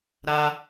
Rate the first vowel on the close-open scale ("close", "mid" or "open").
open